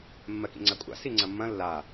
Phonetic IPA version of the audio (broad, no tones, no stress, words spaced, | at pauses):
mːɜkḭŋ͡ǀakʷʼa̰ siŋ͡ǀɐmːɐ̃ lːa